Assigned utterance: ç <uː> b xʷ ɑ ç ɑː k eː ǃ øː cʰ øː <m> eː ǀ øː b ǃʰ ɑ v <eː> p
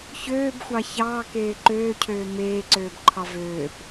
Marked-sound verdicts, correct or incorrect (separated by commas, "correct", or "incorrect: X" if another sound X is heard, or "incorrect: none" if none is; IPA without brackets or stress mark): incorrect: øː, correct, incorrect: øː